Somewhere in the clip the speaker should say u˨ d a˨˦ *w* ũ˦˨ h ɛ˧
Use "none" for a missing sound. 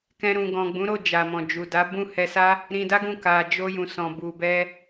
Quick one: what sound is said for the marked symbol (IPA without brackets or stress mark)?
b